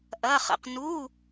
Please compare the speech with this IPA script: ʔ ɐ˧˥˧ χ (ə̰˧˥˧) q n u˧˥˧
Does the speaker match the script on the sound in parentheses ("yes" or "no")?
yes